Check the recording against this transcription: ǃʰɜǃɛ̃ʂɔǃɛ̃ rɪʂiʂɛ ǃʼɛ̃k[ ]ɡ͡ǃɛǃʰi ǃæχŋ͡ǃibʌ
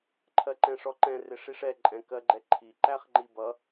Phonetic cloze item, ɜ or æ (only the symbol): ɜ